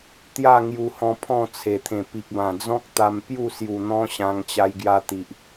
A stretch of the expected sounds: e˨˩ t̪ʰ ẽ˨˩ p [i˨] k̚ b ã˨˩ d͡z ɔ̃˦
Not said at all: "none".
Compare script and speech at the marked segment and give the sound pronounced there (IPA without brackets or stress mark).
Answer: i˨